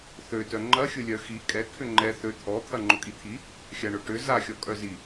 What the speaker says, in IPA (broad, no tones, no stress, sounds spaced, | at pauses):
θ ø t œ ŋ͡ǃ ɐ xʲ ʊ lʲ œ x i kʼ ɛ kʰ ʏ ŋ͡ǃ ɛ θ ø t̪ʰ ɔ t̪ʰ ɐ ŋ͡ǃ ʊ kʼ i t̪ʰ i | xʲ a ɳ ʊ ʈ ʏ z a xʲ ɔ kʼ œ z i